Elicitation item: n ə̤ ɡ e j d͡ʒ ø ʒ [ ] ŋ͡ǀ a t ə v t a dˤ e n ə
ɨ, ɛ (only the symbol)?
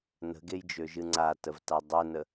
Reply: ɨ